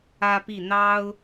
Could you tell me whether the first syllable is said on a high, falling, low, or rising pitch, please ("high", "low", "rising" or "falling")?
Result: high